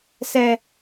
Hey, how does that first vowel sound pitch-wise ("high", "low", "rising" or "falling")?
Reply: high